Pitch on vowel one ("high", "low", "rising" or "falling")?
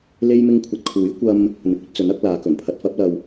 high